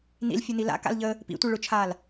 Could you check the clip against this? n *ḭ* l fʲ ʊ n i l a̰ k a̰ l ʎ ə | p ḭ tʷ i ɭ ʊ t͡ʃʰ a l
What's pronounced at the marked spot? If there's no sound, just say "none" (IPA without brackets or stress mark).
ḭ